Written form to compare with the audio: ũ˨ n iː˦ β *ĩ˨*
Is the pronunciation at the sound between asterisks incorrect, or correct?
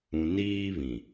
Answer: correct